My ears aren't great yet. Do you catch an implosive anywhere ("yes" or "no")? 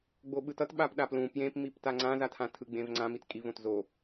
yes